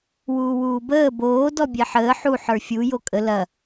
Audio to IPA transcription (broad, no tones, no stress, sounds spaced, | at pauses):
w uː w uː b əː b oː d ɔ bʲ ɛ ħ əː ħ u ħ ə˞ fʲ u j o kʼ ə l ɐ